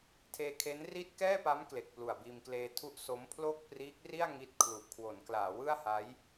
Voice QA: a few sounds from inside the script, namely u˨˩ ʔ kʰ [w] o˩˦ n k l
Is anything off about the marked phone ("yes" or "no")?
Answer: no